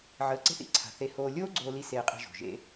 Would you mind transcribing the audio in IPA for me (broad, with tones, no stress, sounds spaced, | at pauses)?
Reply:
ʕ əː˧ ǀ e̤˥ θ ḭ˩ ǀʰ a̤˧ θ e˧ h oː˧ lʲ oː˥ ɡ͡ǀ oː˧ l i˧ s eː˧ qʼ i̤˧ ʒ o̤˩ ʒ ḛ˧